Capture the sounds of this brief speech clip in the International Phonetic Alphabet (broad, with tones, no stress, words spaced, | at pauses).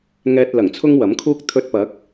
ŋɛː˧t̚lɐ˨˩ŋt͡sʰʊ˥ŋ wɐ˨˥mkʰuː˥k̚ t̪ʰɵ˧t̚pɐ˨˥k̚